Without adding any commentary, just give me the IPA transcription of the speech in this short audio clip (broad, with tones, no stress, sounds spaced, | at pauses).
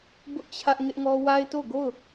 b ʊ˦ ʔ t͡ɕʰ ä˦ ʔ ŋ ɪ˦ ʔ ŋ ɔ˦ w a˦ ɪ̯ t o˦˨ ɡ o˦˨ ʊ̯